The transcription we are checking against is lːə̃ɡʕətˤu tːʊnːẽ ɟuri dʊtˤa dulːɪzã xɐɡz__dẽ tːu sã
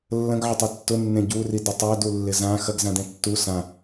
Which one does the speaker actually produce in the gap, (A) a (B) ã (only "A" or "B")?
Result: B